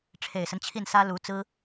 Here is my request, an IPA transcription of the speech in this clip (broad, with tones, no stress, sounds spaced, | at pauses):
ʈ͡ʂʰ e˨˩ ɪ̯ s ə˦ n t͡ɕʰ i˥˩ n s ä˥ l u˧˥ t͡s ɹ̩˥